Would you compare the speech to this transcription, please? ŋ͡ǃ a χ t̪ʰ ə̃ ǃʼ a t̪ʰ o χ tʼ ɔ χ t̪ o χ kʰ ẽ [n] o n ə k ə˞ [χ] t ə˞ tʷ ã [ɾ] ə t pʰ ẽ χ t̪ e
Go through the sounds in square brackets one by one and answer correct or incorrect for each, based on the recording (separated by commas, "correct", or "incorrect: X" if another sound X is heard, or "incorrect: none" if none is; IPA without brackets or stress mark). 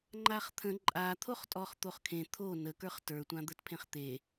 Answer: incorrect: t̪ʰ, correct, incorrect: d̪